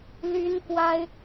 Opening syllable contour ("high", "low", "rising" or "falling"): high